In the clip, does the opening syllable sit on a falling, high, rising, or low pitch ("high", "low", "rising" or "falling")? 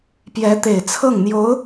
rising